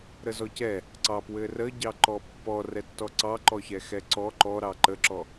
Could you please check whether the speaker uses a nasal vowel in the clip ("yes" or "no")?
no